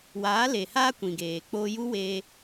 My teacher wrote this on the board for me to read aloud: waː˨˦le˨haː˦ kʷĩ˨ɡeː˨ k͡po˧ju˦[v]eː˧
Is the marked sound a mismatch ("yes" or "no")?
yes